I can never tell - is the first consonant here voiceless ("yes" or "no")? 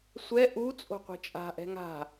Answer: yes